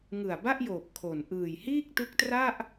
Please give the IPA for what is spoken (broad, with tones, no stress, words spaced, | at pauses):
ŋɯ˨˩a̯ ba˥˩ʔjoː˨˩p̚ kʰo˨˩n ʔɯː˨˩jhiː˥˩k̚tɯ˦˥k̚tra˥˩ʔ